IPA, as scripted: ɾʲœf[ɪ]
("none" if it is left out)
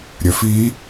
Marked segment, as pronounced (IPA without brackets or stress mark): i